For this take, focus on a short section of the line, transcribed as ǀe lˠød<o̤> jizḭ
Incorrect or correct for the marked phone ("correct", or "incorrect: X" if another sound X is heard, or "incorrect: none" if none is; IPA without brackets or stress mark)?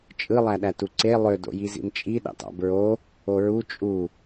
incorrect: o̰